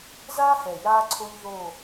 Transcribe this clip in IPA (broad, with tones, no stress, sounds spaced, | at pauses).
z aː˦ h ɛ˨ j aː˦ ǀʰ o˦ ʎ ð o˦˨